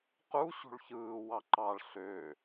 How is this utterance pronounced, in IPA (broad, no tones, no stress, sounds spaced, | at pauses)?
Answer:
q u ɕ ṳ ɭ ç ɯː w ɑ ǃ ɑ ɭ ɬ ø